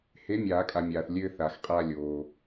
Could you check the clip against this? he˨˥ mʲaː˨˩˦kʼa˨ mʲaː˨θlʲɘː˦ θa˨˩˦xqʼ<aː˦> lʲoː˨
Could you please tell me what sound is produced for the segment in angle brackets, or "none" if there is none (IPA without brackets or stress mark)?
aː˦